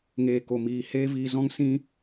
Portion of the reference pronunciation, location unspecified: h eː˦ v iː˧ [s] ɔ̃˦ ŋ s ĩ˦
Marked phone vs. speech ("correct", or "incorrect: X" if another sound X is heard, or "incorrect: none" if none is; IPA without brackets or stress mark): incorrect: z